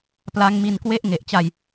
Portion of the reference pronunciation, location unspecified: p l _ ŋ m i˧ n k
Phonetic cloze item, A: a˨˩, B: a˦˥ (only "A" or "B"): B